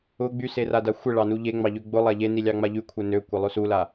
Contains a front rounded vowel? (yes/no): yes